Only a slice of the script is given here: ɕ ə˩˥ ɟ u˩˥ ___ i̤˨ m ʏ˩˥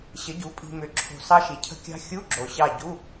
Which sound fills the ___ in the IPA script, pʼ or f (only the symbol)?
pʼ